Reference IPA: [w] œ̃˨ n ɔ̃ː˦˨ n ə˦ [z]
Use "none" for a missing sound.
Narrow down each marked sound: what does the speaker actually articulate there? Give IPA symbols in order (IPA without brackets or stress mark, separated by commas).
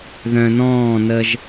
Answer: ð, ʒ